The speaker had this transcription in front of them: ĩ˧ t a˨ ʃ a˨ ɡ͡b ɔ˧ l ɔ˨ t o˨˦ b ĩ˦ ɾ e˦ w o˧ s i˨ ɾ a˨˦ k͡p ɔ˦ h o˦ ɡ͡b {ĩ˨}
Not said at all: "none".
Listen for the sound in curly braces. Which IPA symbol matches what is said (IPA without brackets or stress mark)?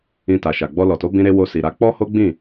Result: ĩ˦˨